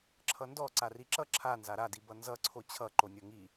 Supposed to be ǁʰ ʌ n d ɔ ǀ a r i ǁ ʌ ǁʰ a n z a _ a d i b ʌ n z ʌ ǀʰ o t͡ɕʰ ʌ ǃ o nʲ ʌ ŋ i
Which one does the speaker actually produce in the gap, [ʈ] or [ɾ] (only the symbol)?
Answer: ɾ